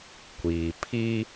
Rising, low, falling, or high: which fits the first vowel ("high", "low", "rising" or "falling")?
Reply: low